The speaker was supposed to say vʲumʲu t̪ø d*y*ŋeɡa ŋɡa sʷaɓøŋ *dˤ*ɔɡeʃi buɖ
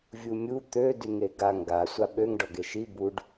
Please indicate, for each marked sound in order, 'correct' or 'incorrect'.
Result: correct, incorrect: ɖ

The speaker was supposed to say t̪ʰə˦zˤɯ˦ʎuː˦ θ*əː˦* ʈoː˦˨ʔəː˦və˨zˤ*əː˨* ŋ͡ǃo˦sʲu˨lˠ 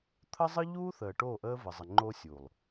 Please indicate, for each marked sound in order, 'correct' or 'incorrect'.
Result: incorrect: əː˨, incorrect: ə˨

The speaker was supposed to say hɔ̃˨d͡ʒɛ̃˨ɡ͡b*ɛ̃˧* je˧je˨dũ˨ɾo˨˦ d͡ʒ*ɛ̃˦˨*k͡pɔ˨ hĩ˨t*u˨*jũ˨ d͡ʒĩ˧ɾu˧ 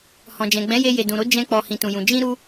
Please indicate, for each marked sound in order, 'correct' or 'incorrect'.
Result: incorrect: ɛ̃˨˦, incorrect: ɛ̃˧, incorrect: ũ˨

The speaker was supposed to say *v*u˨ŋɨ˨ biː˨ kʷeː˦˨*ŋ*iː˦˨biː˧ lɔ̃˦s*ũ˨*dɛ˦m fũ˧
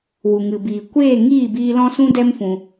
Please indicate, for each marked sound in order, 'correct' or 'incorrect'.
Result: incorrect: w, correct, incorrect: ũ˦

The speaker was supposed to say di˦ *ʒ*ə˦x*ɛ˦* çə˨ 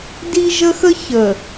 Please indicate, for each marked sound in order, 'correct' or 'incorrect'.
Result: correct, incorrect: ə˦

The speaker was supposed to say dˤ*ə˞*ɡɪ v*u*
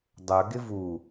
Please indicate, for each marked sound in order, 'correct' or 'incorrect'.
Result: correct, correct

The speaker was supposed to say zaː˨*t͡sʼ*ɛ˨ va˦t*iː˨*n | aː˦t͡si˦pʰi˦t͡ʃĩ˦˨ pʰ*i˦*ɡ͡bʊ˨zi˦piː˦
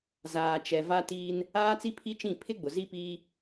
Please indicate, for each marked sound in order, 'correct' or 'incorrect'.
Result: incorrect: t͡ʃ, incorrect: iː˦, incorrect: ɪ˦

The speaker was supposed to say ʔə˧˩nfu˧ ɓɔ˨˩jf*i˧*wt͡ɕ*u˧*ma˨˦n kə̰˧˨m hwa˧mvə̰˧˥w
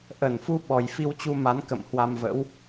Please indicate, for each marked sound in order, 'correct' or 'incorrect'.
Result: correct, correct

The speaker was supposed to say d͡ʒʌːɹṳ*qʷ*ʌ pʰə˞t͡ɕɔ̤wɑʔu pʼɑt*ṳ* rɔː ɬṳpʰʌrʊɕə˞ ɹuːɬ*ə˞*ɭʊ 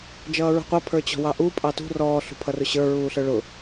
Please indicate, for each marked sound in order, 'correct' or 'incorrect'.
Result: correct, correct, correct

